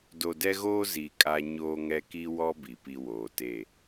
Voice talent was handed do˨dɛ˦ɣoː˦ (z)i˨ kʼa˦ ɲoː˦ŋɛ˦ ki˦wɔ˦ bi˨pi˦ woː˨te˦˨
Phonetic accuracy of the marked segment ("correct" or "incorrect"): correct